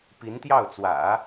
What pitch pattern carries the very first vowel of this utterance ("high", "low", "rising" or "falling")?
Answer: rising